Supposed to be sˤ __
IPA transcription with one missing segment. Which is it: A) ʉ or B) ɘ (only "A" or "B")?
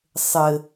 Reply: B